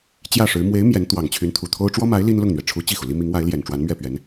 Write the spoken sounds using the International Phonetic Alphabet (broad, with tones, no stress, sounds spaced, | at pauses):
t͡ɕ j ä˥˩ ʂ ɻ̩˧˥ m w e˧˥ ɪ̯ m j ɛ˧˥ n t̪ w ɑ˨˩ ŋ t͡ɕʰ y˧˥ n t̪ʰ u˨˩ t̪ʰ o˥ ʊ̯ ʈ͡ʂ w ɔ˥ m a˧˥ ɪ̯ l i˥ n l ʊ˥˩ ŋ n̪ ɥ ɛ˩ ʈ͡ʂʰ u˧˥ t͡ɕ i˥˩ x u˩ l i˥ m i˧˥ ŋ w a˧˥ ɪ̯ l j ɛ˨˩ n ʈ͡ʂ w a˧˥ n m ɥ ɛ˥˩ p ɥ ɛ˧˥ n